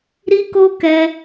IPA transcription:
ɾ i˦ k o˦ k ɛ˦

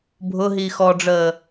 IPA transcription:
bʱ ʊ ɦ iː x ɔ ɖ͡ʐ əː

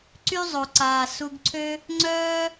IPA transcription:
ǀ y˦ zˤ o˩ ǀ aː˩ s u˨ ɡ ǀʰ ø˦ | ŋ͡ǀ œː˥

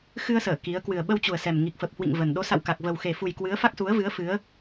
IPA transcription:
x ɨ˧ ə̯ s əː˧˩ k i˨˦ ə̯ k w ɨ˨˩ ə̯ ɓ ə˧ w t͡ɕ u˨˩ ə̯ s ɛ˨˩ m ŋ i˨˩ k̚ f ə˨˩ p̚ h w ḭ˧˨ ŋ v ə˨˩ n ɗ o˨˦ s a̰˧˨ w k a˨˩ k̚ v ə˨˩ w x e˨˩ f u˨˩ j k w ɨ˨˦ ə̯ f a˦˥ k̚ s u˨˦ ə̯ v ɨ˨˦ ə̯ f ɨ˨˦ ə̯

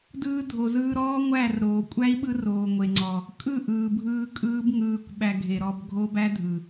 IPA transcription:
d ɯː˧ dʱ o˨ z ɯː˧ ɾ ɔː˦ ŋʷ æ˦˨ r ɾ oː˨ kʷʼ æ˦ i̯ ɓ ɯ˦ r oː˨ ŋʷ e˨ ŋ͡ǀ ɔ˨ | kʼ ɯ˦˨ ʔ ɯː˨ bʱ ɯː˧ kʼ ɯː˦ b ŋ ɯː˧ kʷ ɓ æ˧ ɡʱ e˨ ɾ ɔ˧ b ɡʱ o˦ b æ˦ dʱ ɯ˨

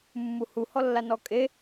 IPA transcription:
mː u h u h ɔ lː a n ɔ kʼ e

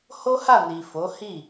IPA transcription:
h o˦ h a˦˨ n i˨ f o˨˦ h i˦˨

